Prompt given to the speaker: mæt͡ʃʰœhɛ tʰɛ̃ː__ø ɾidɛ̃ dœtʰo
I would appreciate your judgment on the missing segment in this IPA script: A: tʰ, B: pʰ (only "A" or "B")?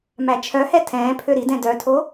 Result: B